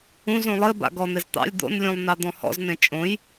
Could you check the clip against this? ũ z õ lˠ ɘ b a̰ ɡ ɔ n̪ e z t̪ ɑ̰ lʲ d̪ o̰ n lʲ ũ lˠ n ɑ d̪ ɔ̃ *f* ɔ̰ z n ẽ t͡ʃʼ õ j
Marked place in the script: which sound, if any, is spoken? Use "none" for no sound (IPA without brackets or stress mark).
h